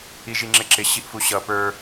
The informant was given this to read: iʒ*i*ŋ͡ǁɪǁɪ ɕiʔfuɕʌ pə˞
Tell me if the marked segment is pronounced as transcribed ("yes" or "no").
yes